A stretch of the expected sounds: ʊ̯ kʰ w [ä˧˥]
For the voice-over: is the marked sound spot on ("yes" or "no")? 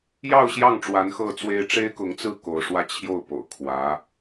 yes